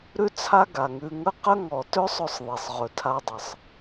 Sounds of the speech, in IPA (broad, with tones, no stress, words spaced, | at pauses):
ɾʉ˦t͡sʰa˦ɡa˨ŋʉ˧ ŋə˦qə˦ŋɔ˨ tø˦sˤɵ˧sˤ ðˤe˨sˤʁɵ˨tʰa˧dˤə˨sˤ